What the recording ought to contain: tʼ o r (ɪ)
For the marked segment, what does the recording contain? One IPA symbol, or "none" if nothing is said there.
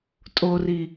i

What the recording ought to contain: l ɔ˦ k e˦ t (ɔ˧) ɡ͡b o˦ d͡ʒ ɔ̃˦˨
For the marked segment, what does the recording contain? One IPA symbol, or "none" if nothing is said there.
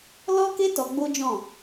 ɔ˧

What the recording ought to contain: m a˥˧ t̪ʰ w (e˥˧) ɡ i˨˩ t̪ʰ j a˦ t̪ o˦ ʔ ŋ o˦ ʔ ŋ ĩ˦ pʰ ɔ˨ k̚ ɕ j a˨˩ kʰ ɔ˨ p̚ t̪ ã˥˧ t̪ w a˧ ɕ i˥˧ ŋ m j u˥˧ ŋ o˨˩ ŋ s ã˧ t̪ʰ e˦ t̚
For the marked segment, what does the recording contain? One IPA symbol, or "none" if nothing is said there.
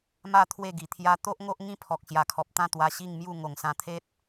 e˥˧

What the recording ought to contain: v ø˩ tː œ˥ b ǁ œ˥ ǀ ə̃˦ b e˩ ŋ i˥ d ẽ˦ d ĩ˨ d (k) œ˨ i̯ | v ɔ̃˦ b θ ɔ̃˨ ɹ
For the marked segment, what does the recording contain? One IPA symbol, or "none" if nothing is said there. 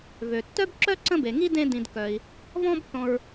k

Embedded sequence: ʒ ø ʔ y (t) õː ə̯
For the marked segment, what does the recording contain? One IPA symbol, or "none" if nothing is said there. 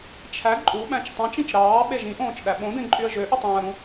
tˤ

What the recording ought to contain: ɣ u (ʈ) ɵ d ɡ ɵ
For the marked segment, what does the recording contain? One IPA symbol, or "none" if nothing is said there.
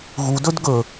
d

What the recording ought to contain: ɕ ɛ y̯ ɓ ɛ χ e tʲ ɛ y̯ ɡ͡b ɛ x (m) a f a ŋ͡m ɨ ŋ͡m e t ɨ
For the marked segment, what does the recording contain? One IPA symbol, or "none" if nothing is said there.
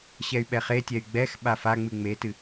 ɓ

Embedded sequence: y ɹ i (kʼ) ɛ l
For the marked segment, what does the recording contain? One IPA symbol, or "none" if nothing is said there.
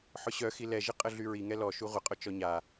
ŋ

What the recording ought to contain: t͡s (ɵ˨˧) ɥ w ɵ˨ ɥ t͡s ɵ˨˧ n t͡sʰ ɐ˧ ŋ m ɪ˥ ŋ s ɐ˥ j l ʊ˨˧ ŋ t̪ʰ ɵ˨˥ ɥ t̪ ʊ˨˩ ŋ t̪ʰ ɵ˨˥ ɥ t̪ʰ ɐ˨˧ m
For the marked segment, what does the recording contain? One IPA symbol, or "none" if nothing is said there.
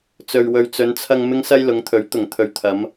ɵ˨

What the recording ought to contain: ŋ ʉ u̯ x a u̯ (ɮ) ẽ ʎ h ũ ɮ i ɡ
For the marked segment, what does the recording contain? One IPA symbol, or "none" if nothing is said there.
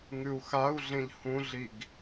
ɮ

